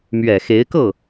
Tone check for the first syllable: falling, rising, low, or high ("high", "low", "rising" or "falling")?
low